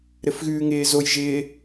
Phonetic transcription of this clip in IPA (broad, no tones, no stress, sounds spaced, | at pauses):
ɾ ɘ f ɣ ʉː ŋ ɪː z o j ʒ ɪː